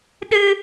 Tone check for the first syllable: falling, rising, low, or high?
high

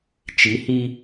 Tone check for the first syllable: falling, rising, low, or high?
rising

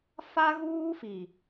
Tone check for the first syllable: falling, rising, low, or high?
high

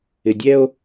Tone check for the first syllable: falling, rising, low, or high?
low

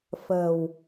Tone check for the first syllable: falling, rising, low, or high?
low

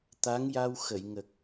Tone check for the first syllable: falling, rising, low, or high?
rising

